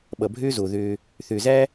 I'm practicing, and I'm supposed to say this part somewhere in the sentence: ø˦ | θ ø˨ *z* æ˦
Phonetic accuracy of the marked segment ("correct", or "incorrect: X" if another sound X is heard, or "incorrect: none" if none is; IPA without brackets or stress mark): correct